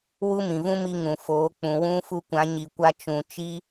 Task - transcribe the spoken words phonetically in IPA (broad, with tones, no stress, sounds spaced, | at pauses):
w u˦ m ĩ˨ v ũ˦ m i˧ ŋ ũ˨ f oː˨˦ k͡p ũ˨ w ũ˦ f u˦ kʷ ã˨˦ ɲ i˨ kʷ a˧ t͡ʃ ũ˨ t͡ʃ i˦